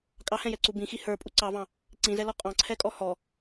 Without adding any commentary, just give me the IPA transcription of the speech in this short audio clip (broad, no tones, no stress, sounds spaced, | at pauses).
kʼ ɑ h ɛ̃ j ɛ ǀ u b ĩ x i h ə˞ pʼ u ǀ ɑ v ɑ̃ | ǀ ĩ z ɛ l ɔ qʼ ɑ̃ ǀʰ ɛ kʼ ɔ h ɔ